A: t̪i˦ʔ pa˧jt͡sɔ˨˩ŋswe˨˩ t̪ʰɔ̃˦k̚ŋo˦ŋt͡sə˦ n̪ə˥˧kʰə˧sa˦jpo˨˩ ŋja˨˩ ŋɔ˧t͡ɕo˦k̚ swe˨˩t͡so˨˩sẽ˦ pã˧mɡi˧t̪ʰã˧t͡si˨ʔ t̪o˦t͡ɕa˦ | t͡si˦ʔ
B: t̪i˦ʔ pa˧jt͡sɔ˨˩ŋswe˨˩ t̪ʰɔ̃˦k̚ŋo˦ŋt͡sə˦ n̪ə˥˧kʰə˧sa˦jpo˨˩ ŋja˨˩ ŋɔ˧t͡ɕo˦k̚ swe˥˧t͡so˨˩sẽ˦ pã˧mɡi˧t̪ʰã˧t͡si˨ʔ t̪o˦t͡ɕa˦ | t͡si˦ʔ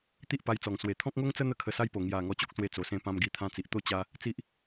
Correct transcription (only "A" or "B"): B